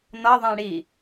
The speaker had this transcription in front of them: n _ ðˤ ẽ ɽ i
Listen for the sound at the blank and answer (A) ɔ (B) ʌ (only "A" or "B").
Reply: B